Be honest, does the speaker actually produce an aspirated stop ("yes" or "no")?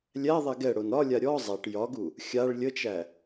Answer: no